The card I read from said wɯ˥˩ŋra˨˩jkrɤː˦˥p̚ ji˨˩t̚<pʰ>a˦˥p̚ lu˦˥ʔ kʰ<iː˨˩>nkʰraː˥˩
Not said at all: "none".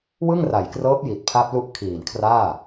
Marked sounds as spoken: pʰ, iː˨˩

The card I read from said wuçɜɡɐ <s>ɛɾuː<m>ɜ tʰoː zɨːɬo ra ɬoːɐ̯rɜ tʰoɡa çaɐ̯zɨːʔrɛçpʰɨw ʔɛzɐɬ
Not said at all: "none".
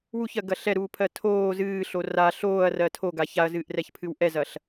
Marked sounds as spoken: ɬ, pʰ

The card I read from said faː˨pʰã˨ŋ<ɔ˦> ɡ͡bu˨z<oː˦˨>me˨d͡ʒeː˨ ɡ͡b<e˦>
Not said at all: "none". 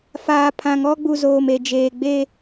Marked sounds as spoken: ɔ˦, oː˨, e˦

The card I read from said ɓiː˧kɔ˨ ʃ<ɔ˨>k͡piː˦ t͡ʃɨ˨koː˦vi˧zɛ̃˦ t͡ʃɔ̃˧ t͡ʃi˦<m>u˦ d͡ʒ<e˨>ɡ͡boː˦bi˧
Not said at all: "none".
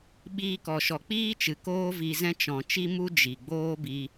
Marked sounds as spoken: ɔ˨, m, i˨

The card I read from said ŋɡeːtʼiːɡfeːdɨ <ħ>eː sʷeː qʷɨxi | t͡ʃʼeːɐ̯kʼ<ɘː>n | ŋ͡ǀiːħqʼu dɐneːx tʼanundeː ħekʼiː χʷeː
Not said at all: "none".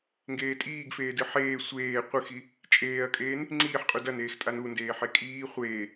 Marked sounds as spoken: ħ, eː

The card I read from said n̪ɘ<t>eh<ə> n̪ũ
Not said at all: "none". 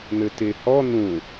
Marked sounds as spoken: t, ɔ

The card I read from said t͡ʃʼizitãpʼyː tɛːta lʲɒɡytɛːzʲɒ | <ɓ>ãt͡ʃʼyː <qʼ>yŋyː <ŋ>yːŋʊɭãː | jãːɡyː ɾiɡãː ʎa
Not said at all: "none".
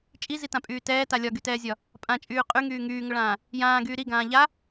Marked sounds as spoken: pʼ, qʼ, ŋ

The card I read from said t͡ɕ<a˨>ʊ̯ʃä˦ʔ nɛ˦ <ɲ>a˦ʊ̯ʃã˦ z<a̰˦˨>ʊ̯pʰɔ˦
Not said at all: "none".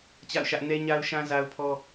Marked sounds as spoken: a̰˦˨, ɲ, a˦

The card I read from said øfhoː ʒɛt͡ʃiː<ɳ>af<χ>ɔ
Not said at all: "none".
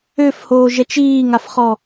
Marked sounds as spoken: ŋ, χ

